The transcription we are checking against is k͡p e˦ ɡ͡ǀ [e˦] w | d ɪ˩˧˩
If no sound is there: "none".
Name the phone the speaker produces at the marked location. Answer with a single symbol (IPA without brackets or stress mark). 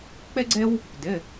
e˦